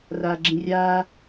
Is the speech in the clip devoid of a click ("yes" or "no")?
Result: no